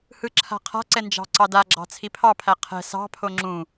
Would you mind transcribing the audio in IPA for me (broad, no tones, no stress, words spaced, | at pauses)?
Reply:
hɯǁʰa̤qʰa̤ǀɛ nd͡ʒɑ̤ǀɑdaɡ͡ǁɑ̤ t͡sʰipʰɑpʰæ qʰɛ̤ sɑ̤pʰo ŋ͡ǁũ